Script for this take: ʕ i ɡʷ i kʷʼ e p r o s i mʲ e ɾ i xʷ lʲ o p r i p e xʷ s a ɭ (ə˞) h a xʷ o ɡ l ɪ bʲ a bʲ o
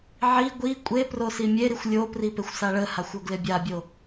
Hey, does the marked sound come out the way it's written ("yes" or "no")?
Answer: no